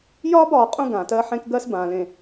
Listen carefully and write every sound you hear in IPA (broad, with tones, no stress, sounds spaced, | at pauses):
j ɒː˦ b ɒː˨ qʼ ũ˦ ɡ ã˨ t ɜ˦ ħ ẽ˦ k ɡ ɜ˦ s b ã˨ l ẽ˨